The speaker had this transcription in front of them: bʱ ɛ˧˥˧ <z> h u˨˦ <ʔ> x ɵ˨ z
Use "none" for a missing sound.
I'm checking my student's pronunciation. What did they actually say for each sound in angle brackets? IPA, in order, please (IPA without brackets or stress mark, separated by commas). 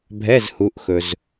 z, ʔ